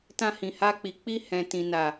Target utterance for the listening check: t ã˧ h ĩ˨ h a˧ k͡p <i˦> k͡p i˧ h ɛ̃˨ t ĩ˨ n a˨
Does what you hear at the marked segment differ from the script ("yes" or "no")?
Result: yes